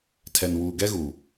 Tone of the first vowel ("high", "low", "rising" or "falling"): low